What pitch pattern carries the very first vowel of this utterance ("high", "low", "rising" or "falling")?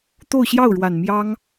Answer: falling